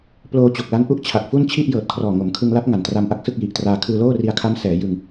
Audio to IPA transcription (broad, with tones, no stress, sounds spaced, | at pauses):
p l oː˧ t͡ɕ o˨˩ k̚ l a˦˥ n ʔ u˥˩ ʔ t͡ɕʰ a˨˩ k̚ f u˥˩ n t͡ɕʰ i˥˩ ʔ j ɤː˨˩ t̚ kʰ r ɔː˨˩ ŋ o˩˦ m kʰ ɯ˧ ŋ l a˦˥ p̚ ŋ a˨˩ n t r a˧ m ʔ a˥˩ k̚ s ɯ˥˩ k̚ j i˨˩ ʔ t r aː˧ kʰ ɯː˧ l oː˥˩ r i˧ a̯ kʰ a˦˥ m s ɛː˩˦ j ɯ˧ ŋ